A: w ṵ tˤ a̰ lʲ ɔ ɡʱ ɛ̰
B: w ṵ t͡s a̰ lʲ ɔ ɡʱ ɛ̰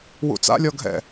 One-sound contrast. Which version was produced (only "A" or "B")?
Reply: B